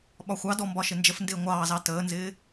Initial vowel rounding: rounded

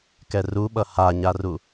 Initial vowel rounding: unrounded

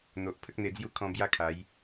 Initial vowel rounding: rounded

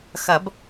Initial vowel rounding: unrounded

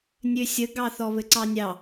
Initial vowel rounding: rounded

